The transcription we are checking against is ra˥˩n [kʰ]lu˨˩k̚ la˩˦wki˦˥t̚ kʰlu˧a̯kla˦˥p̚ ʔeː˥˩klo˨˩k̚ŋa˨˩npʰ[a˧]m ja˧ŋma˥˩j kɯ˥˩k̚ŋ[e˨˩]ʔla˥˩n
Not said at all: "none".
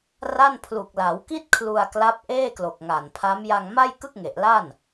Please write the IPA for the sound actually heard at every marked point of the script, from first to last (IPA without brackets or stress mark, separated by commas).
pʰ, a˦˥, e˨˩